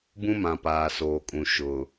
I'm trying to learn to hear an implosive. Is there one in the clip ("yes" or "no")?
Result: no